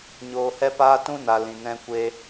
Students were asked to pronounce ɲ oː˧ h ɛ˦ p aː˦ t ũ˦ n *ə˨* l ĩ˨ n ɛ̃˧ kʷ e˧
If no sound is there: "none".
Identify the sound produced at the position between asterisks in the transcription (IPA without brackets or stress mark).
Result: a˨